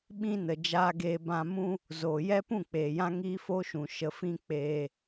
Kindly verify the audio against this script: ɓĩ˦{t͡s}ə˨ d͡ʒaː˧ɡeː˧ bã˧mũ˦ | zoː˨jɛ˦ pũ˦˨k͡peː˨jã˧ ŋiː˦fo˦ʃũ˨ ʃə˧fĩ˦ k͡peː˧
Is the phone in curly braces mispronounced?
yes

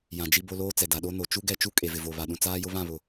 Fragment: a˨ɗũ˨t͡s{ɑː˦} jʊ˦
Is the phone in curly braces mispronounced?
yes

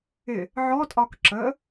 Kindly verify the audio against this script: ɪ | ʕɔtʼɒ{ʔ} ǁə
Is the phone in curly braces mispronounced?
yes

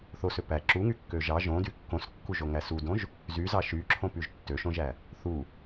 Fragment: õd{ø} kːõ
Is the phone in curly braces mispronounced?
yes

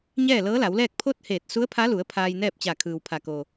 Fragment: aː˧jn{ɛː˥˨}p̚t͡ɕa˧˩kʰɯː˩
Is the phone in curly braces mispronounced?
no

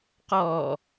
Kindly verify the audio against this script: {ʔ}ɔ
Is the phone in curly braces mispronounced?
yes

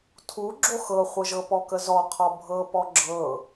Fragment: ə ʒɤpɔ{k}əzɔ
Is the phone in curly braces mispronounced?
no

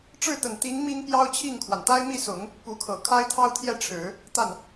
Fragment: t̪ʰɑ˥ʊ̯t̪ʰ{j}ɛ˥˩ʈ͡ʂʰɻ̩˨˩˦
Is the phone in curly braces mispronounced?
no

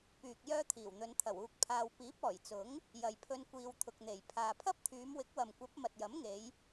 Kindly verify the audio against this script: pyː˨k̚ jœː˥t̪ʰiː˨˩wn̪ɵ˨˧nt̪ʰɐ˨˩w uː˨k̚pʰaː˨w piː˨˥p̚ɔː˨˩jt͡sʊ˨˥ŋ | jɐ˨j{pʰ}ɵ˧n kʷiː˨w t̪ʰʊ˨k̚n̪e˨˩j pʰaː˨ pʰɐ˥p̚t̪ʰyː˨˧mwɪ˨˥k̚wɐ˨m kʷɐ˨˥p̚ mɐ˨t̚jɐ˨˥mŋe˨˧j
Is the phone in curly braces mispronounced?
no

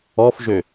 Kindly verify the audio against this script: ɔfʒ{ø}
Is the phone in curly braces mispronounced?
no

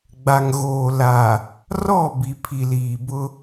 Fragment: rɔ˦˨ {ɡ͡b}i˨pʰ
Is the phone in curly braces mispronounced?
yes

